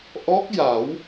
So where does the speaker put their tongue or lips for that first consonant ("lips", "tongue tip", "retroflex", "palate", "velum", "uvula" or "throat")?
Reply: throat